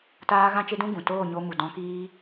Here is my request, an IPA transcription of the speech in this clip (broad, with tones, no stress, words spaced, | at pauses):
taː˦ ɣã˦t͡ʃe˦dũ˦ ɡũ˨ toː˦˨ɲo˧ mu˨dɔ̃˧kiː˦